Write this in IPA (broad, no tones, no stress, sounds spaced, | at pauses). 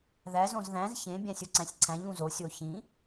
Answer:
ð æ z õ z ð æ̃ z ç ẽ bʲ æ̃ sʲ u ǀ æ̃ sʲ ǀʰ æ̃ ʎ ũ z o sʲ o ç ĩ